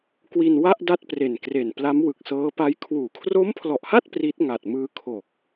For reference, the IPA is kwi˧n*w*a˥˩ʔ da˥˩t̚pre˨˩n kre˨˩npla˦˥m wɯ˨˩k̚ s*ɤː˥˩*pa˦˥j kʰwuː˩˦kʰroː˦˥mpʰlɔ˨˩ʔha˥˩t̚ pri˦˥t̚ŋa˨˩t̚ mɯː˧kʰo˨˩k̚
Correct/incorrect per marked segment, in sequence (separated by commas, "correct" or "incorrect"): correct, incorrect